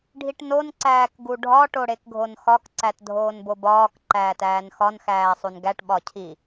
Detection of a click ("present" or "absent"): present